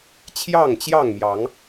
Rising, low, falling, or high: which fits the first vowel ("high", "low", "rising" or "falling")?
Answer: falling